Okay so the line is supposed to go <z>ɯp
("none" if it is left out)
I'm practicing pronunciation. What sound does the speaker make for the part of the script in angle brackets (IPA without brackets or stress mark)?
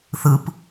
θ